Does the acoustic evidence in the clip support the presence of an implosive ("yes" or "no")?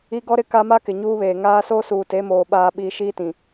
yes